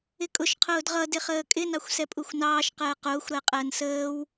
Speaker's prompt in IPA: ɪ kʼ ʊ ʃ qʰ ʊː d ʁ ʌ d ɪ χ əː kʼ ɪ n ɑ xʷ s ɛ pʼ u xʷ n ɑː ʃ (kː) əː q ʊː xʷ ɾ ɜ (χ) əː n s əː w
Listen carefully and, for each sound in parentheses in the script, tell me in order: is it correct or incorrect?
incorrect, incorrect

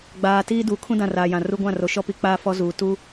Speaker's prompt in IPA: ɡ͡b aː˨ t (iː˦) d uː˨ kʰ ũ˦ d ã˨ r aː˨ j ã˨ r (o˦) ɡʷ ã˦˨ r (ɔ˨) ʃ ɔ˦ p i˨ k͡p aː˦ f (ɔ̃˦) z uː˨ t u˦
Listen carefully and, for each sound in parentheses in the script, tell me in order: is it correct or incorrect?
correct, incorrect, incorrect, incorrect

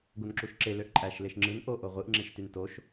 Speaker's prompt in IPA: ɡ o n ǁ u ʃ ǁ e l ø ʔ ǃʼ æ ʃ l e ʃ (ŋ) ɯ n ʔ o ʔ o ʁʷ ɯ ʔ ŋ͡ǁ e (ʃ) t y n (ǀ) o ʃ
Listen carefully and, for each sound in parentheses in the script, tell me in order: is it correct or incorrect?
incorrect, correct, incorrect

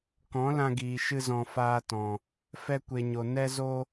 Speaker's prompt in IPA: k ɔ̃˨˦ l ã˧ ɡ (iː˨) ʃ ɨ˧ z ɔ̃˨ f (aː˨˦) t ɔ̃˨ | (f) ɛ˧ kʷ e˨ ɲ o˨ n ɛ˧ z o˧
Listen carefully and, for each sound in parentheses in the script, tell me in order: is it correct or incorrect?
correct, incorrect, correct

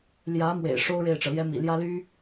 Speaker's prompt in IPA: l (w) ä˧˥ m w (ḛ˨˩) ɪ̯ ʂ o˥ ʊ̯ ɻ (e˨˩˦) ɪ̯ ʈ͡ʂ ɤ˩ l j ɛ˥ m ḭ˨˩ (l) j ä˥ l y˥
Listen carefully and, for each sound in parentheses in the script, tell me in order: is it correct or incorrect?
incorrect, correct, incorrect, correct

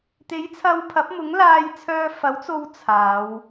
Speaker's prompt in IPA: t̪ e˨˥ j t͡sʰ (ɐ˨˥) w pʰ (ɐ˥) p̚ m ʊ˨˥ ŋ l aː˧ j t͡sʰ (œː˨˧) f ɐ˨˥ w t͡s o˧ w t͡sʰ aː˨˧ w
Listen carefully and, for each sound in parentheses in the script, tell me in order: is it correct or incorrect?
incorrect, incorrect, incorrect

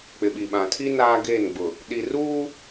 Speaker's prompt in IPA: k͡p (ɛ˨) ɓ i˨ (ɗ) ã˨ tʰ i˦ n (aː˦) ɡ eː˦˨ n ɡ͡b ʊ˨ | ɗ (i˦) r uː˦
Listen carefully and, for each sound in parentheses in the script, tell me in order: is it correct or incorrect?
incorrect, incorrect, correct, incorrect

